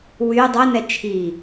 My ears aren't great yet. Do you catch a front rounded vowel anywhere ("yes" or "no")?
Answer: yes